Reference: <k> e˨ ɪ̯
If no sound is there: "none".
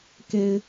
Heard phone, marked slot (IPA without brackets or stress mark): k